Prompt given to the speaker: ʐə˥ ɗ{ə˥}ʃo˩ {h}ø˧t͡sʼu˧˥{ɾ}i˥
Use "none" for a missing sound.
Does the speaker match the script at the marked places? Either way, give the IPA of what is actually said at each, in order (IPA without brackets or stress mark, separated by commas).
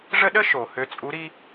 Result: ə˥, h, ɾ